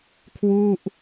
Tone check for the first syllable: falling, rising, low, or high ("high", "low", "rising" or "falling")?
falling